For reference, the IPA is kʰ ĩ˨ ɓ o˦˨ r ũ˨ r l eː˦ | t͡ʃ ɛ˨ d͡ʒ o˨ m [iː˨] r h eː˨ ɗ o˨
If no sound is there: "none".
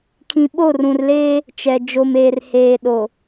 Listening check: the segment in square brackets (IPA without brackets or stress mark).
eː˨